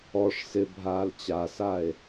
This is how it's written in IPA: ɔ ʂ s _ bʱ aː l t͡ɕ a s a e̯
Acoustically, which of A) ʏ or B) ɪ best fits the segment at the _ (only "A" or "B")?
B